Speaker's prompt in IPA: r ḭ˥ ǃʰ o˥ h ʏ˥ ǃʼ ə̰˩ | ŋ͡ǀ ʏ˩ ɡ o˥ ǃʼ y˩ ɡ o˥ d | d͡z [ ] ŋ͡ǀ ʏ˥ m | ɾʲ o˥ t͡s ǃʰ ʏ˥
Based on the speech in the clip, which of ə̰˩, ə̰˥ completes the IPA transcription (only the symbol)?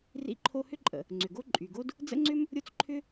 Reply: ə̰˥